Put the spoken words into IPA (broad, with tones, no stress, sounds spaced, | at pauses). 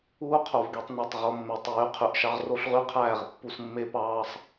uː˦ qʰ o˨ v ɡ e˧ tˤ n e˨ tˤ ʁ o˧ mː e˨ tˤ yː˨˦ qʰ y˨ ʔ ʃ ɑ˦ ʁ r o˦ ɬ ʁ y˦ qʰ æː˦˨ ʁ pː u˧ s mː e˦ p ɑː˦ sˤ